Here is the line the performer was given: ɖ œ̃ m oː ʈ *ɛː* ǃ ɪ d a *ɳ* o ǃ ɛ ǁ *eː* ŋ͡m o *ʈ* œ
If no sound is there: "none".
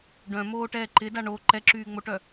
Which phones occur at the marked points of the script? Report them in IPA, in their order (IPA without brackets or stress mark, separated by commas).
ɛː, ɳ, yː, ʈ